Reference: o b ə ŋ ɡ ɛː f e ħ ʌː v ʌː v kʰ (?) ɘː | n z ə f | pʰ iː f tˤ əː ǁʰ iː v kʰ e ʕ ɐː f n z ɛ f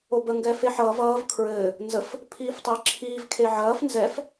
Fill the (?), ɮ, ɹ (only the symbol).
ɹ